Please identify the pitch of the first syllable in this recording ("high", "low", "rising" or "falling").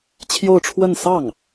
falling